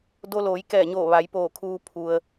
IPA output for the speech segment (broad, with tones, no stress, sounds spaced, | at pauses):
d o˧ l oː˩˧ j k ɛː˧˩ ɲ oː˧˩ ʋ a˩˧ j p oː˧˩ kʰ uː˧ pʰ u˩ ə̯